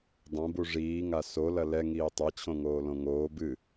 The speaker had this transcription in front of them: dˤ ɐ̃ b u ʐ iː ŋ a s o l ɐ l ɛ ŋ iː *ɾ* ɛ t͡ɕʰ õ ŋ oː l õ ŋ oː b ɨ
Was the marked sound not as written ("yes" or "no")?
yes